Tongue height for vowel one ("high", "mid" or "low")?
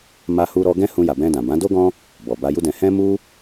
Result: low